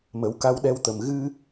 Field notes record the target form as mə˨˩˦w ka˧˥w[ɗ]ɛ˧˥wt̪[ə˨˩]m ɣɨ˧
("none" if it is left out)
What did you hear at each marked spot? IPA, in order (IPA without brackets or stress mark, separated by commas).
ɗ, ə˨˩